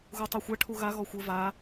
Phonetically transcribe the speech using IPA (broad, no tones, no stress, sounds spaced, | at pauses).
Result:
ɣ u tˤ u xʷ a ʈʰ u ɣ a ɣ ɔ xʷ ɘ v a